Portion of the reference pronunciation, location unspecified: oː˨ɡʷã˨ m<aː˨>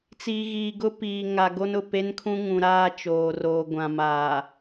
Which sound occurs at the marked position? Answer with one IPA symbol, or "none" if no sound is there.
aː˨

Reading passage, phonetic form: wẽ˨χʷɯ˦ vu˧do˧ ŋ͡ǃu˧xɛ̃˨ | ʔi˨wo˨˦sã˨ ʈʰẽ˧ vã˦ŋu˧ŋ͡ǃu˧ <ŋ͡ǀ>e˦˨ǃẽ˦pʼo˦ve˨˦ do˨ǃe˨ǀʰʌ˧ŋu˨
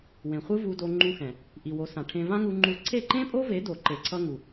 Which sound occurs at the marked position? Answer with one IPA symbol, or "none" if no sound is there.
ǀʰ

